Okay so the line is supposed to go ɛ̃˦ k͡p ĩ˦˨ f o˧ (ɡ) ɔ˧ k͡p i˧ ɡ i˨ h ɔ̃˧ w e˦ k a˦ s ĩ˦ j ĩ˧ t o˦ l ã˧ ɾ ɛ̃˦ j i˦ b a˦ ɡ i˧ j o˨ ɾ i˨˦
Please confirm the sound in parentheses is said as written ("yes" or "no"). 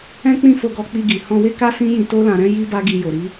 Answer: yes